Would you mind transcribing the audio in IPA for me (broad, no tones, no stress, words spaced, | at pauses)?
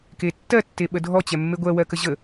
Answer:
ketːɜ tːeɓədʱɔ t͡ɕɛmːeɡʷɜ wɜkəʑə